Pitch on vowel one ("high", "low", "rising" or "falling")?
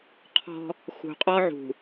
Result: high